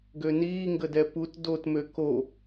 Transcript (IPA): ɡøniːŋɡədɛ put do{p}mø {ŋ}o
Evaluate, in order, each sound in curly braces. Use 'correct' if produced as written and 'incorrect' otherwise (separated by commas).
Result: incorrect, incorrect